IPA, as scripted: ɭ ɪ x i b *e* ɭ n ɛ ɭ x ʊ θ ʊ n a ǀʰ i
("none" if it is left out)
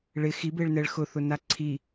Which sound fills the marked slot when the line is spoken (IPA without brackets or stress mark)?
e